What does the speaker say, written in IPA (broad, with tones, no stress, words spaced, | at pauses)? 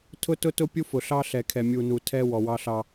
tʰʊ˦tʊ˦tʊ˦ pʲu˦fʊ˨ɬɑ˦ ɬɛ˨kʰɛ˨mʲu˨nu˨ tʰɛ˦ wɔ˨wɑ˦ɬɑ˦